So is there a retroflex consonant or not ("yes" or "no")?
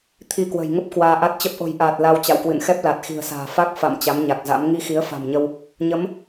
no